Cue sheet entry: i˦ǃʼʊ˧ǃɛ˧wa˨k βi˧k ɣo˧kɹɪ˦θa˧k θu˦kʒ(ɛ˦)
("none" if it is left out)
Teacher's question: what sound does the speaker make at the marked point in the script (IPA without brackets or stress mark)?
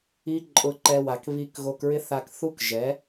ɛ˨˦